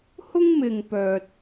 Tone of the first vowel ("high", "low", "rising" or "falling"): high